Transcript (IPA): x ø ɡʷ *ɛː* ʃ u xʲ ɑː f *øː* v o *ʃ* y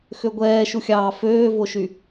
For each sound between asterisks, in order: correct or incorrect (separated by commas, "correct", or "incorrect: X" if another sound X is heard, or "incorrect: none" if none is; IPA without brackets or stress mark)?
correct, correct, correct